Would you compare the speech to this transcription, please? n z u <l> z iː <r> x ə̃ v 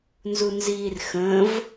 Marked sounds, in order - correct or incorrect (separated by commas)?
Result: incorrect, correct